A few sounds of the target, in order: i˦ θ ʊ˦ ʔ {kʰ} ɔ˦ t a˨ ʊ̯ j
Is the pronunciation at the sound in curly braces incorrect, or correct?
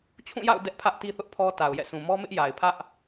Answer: incorrect